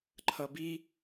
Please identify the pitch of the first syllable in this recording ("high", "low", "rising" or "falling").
low